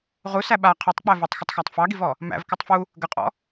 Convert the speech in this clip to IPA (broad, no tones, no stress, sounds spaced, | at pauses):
ʁ u s æ ɓ a qʰ e tˤ k͡p æ v u tˤ x ə tˤ x æ tˤ f ɑ ɡ i v ɔ | m æ̰ v k ɨ tˤ f u | ɡ ə qʼ ɔ̰